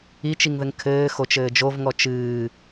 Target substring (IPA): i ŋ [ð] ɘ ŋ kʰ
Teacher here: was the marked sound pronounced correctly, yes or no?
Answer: yes